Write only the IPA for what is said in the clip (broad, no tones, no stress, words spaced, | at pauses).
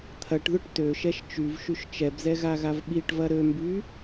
t̪ʰɐʈðʊʈ tøʃɛʃ t͡ʃyvʃyʃ t͡ʃɛbzɛɣaɣav ɓiʈvɐ ɾømby